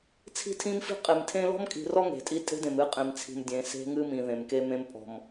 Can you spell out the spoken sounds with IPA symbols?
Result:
t͡sʰ i̤˦ tʰ ĩ˦ m f i̤˦ qʼ e˨ m tʰ ẽ˦ l ɔ̤˦ m kʼ i̤˨ r ɔ˦ ŋ e̤˨ tʼ i˦ tʼ e̤˦ d ẽ˨ m ɨ˦ qʼ ẽ˨ m t͡sʰ i̤˨ m dʲ ẽ˨ s e̤˦ ŋ ɨ˦ m ĩ˨ ð ẽ˨ m k e˦ m ẽ˦ m pʼ ɔ̤˨ m

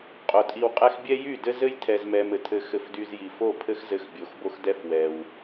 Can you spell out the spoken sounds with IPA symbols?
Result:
qʼ o˨ tʼ i˧ w qʼ ɛ˦ x bʲ ɛ˦ j y˦˨ d ɘ˦ z ɘ˦ j tʰ ɛ˨ z m ɛ˨ m ɘ˨ tʰ ɘ˧ x ɘ˧ f d y˧ z j i˨ f o˦˨ pʰ ɘ˦ x z ɘ˧ x bʲ o˨ x b o˦ x d ɛ˦ f w ɛ˧ w

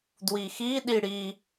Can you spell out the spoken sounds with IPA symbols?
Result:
d w i x i ɗ i ɽ i

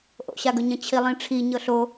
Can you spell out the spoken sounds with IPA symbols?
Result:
ʔ o̰ ɕ a ɡ ɵ ɲ ə̃ t͡ɕʰ i lˠ ĩ ʈ͡ʂʰ i ɲ ɤ ɬ o

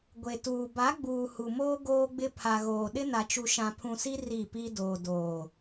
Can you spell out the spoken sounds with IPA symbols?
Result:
ɡʷ e˨ t uː˨ b a˨˦ ɡ͡b uː˨ h u˨ m oː˦ ɡ oː˦ ɡ͡b ɪ˦ pʰ a˨ ɣ oː˨ ɗ ɪ˦ n a˨ t͡ʃ u˨ ʃ ã˨ pʰ ũ˨ s i˦ r i˦˨ p i˦ d oː˨ d oː˨

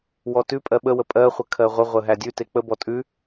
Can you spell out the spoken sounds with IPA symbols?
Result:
w ɔ t ʉ pʼ ɜ ɓ ə w ə pʼ ɜ χʷ ə kʰ ɜ ʁʷ ə ʁʷ ə ɦ æ dʲ ʉ t e k͡p ə b ɔ tʼ ʉ

